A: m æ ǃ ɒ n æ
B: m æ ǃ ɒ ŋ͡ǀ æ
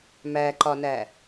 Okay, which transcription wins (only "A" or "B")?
A